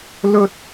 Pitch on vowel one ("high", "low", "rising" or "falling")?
high